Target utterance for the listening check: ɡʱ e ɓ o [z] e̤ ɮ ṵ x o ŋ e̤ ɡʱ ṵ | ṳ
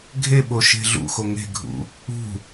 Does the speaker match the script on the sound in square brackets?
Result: no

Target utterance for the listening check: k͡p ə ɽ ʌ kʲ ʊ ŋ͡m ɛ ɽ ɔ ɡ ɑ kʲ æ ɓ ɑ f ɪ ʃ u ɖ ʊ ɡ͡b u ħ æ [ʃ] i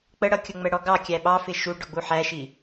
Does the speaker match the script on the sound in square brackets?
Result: yes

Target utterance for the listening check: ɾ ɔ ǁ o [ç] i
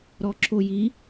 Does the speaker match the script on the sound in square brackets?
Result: no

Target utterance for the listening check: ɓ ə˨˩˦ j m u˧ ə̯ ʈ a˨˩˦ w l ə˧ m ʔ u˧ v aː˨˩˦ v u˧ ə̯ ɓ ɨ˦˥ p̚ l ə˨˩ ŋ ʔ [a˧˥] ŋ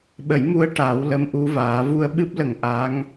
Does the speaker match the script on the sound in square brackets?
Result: yes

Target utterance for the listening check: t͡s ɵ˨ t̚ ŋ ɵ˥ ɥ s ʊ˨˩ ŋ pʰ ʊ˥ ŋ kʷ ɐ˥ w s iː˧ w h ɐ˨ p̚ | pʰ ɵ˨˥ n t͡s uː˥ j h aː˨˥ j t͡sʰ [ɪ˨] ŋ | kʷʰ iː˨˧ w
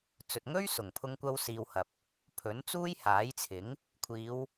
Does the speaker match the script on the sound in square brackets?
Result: no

